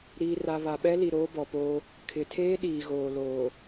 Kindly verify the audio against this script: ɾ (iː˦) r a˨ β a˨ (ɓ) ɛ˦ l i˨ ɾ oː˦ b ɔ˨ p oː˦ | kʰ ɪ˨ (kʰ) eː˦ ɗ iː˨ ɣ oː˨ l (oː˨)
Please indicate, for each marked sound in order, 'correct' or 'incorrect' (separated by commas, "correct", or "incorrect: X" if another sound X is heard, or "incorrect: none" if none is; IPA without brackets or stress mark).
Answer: incorrect: iː˨, correct, incorrect: tʰ, correct